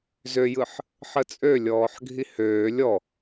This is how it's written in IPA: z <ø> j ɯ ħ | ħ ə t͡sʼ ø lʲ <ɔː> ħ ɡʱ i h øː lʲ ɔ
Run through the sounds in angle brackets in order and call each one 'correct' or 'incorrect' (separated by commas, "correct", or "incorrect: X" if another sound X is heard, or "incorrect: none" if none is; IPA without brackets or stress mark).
correct, correct